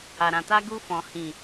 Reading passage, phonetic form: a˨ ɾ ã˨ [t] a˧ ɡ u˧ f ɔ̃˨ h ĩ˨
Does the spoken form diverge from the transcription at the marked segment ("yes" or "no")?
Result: no